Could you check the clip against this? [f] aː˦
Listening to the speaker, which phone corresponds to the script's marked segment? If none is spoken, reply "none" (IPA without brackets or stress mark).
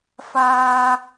f